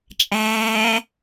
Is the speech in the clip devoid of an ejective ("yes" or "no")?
no